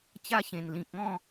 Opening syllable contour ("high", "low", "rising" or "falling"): high